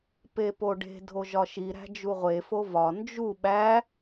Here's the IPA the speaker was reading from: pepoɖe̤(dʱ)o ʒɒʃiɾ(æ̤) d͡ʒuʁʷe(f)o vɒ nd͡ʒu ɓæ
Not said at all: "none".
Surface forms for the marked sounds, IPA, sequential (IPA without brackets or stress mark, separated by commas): dʱ, æ̤, f